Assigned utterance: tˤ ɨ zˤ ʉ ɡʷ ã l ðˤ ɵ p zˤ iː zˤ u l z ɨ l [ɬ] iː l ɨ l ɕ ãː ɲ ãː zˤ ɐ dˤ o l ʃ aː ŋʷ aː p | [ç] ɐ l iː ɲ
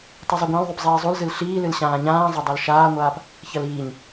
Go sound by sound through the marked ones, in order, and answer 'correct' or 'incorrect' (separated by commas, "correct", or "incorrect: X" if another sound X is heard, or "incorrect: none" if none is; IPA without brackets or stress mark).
correct, correct